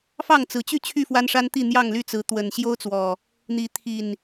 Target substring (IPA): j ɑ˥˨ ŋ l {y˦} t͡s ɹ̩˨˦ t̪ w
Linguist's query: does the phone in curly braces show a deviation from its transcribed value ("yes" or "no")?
yes